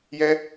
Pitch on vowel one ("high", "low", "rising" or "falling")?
high